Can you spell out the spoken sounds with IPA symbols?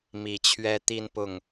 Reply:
mi˨˩t͡ɕʰɥɛ˦t̪i˦npʊ˥˨ŋ

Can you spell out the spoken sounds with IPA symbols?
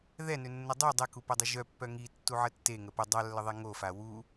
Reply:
ðɛ nønːədˤu dˤɛkupədˤi ʒœpːœ ŋi tːuʕətːeŋə pə dˤalːəðˤɛ ŋofa wu

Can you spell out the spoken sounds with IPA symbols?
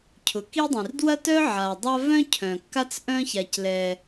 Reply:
cʰʊ˩ki˦dˤĩ˩r dwɐ˥tœ˥ ʕa˩dˤa˥ vœ̃˥cʰœ̃˩kːa˦t͡s ʔœ̃˦ça˩clɛ˩

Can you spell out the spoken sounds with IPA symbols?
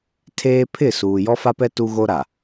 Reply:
tʰeː˦ pʰɪ˦˨ suː˨ jɔ˦fa˦pɛ˦ tu˦ɣo˦ɾa˨

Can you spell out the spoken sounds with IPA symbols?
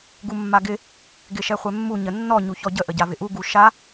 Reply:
ɡumːaɡɪ | ɡɪʃɛχʷɛmːu ɲənːɔ ɲuçɔɟə ʔəɟavɪʔu ɡuʃa

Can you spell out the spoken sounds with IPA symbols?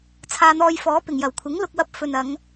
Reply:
t͡sʰaː˧n̪ɔː˧jfɔː˨˥pɪ˨˩ŋ jɐ˨˩wkʷʰɪ˨˥ŋ lʊ˨k̚wɐ˨p̚ fɵ˨nɐ˨˧ŋ

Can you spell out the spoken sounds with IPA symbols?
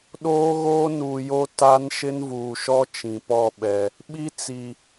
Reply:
ɗoː˦ɣoː˦nuː˨jo˦ ta˦n ʃɪ˦nvuː˨ʃɔ˦ t͡ʃĩ˨pɔ˦˨ɓɛ˨ | ɓi˦ t͡si˨

